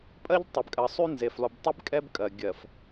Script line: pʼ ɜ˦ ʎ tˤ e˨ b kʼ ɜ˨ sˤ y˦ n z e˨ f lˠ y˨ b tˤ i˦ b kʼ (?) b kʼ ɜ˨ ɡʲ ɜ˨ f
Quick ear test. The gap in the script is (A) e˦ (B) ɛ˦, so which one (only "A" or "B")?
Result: B